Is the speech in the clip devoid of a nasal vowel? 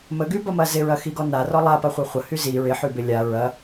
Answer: yes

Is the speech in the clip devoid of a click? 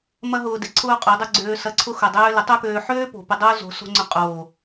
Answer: no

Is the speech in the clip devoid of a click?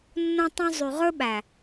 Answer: yes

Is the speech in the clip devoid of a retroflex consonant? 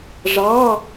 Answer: no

